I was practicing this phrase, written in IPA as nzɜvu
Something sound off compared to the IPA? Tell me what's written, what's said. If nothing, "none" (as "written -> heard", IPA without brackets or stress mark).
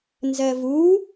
none